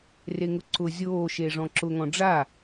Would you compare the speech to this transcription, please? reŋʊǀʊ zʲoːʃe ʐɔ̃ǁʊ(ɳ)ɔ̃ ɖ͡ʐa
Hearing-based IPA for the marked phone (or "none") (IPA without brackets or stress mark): ŋ